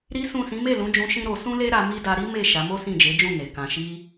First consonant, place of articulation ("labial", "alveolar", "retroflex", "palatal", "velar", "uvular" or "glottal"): alveolar